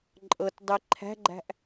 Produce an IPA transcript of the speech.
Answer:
ǃʼ ɤ t dˤ i ǃʰ æ̤ ɡ͡ǃ æ̤ ʔ

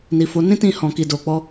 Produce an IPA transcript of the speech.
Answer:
n i˨ f o˨˦ n ĩ˦ t ĩ˦˨ h ɔ̃˨ k i˨ d o˨ k͡p ɔ˨˦

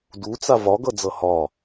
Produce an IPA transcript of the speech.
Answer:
d u t͡s a v ɒ ɡ ʌ d͡z ʌ h ɒ

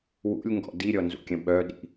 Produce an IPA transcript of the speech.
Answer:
w ṵ lʲ ŋ ɡ ɔ̰ d i ɾʲ ɔ n z ṵ kʲ ə̃ ɓ œ ɗ ḭ

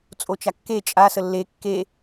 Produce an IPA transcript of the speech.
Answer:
t͡sʼ o t͡ʃ a kː e t͡ʃʼ a s ə lː e kː e

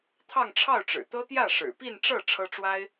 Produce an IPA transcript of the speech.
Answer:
t̪ʰ ɑ˥˧ ŋ ʈ͡ʂʰ ɑ˥˩ ʊ̯ ʈ͡ʂ ɻ̩˨˩ t̪ ɤ˥ t̪ j ä˥˩ ʂ ɻ̩˨˩ p i˥˧ n ʈ͡ʂ ɤ˥˩ ʈ͡ʂʰ ɤ˥ ʈ͡ʂ w a˥ ɪ̯

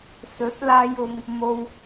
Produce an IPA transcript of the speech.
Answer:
s ɵ˨˥ t̚ l aː˧ j ʊ˨ ŋ | m o˧ w

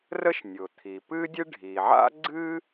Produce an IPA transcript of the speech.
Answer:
r ə˥ ʃ nʲ ʊ˩ t̪ʰ i˩ p ɨ˥ dʲ ɨ˥ ɖʱ i˩ ʕ a̰˥ ɡ͡ǀ ɨ˥

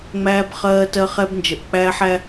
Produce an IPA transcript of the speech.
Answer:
ŋ͡m æː˦ b χ ɜː˦ t ɜ˧ χ ɛ˧ b n d͡ʒ ə˨ ʔ k͡p æː˦ ħ æ˦

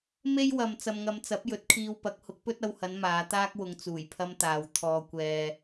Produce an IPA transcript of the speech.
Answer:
m e˥ j w ɐ˨ m t͡s ɐ˨ m ŋ ɐ˨ m t͡s ɐ˨˥ p̚ j ɵ˨˥ t̚ kʰ iː˧ w p ɐ˨˥ k̚ h ʊ˨˥ k̚ p ɵ˥ t̚ ɐ˧ w h ɐ˨˧ n m aː˨˧ t̪ aː˥ k̚ w ʊ˨ ŋ t͡s uː˨˩ j pʰ ɐ˥ m t̪ aː˨ w t̪ʰ ɔː˨ kʷ ɛː˨

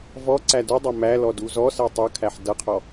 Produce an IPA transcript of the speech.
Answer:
v ɔ ǀ æ d u dˤ ʌ m æ l ɔ d u z ɔ s ɜ tˤ ʌ kʰ æ ħ d ʌ qʰ ɔ

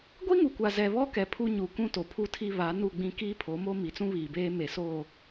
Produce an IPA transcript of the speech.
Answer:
ɡʷ i˦ ŋ u˨ kʷ a˨ z ɛ˨ β ɔ˦ k ɛ˨ pʰ u˦ ɲ u˨ k ũ˦ t o˨ pʰ u˦˨ tʰ i˦ β a˨˦ n u˦˨ ɡ͡b ĩ˦ k iː˦ pʰ o˨˦ m o˦ m i˨ t͡s ũ˦ β iː˨ b eː˦ m e˨ s oː˦˨

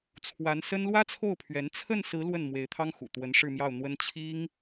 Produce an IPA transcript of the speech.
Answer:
t͡sʰ w a˧˥ n s ə˥ n l w ä˥ t͡sʰ o˥˩ ʊ̯ pʰ ɥ ɛ˧˥ n t͡sʰ ə˥˩ n s ɹ̩˧˥ l w ə˥˩ n m w e˧˥ ɪ̯ t̪ʰ ɑ˥ ŋ x ṵ˨˩ t̪ w ə˧˥ n ʂ ɻ̩˥˧ m j ɑ˥˩ ʊ̯ n̪ w ə˥ n t͡ɕʰ i˥ ŋ

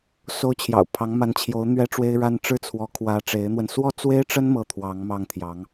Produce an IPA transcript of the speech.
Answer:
s o˥ ʊ̯ t͡ɕʰ j ɑ̰˨˩ ʊ̯ pʰ ɑ˧˥ ŋ m a˧˥ n t͡ɕʰ j o˧˥ ʊ̯ n̪ ɥ ɛ˥ ʈ͡ʂ w e˥ ɪ̯ ɻ a˥ n ʈ͡ʂ ɻ̩˥˩ t͡sʰ w ɔ˧˥ kʰ w ä˧˥ ʈ͡ʂ e˧˥ ɪ̯ n̪ w ə˧ n s w ɔ˥ t͡s w e˥ ɪ̯ ʈ͡ʂ ə˥ n m ɤ˥˩ t̪ʰ w ɑ˧˥ ŋ m ɑ˥˩ ŋ t̪ʰ j ɑ˧˥ ŋ

